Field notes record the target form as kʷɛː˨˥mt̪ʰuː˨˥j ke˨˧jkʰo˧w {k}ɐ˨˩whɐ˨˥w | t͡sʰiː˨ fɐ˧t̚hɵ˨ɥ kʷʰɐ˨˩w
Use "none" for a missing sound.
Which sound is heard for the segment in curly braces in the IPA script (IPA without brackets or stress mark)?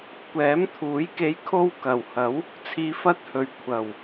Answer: k